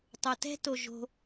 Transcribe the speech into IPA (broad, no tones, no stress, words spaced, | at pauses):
tˤotɛ̤ toʒo̤